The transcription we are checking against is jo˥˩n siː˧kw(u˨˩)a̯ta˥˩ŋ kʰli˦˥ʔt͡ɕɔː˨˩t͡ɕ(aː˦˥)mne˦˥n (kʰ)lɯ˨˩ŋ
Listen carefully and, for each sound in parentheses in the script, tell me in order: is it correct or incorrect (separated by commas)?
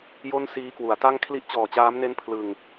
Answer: incorrect, correct, incorrect